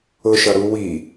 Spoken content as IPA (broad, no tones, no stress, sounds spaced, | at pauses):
ʊ ʃ ʌ ɾ u w i